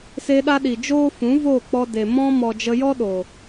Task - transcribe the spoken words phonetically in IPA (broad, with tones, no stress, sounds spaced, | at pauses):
s e˧ ɗ a˧ ɗ i˨ d͡ʒ oː˦ f ũ˨˦ v oː˦˨ k͡p ɔ˧ d e˨ m ɔ̃˧ m ɔ˨ d͡ʒ ə˧ j ɔ˦ ɗ o˨